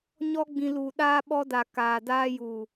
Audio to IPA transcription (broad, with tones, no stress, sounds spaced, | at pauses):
ɲ ɔ˦ ɡ͡b ĩ˧ l u˨ ɗ aː˧ ɓ ɔ˧ d a˨ k aː˨ d aː˧ j u˨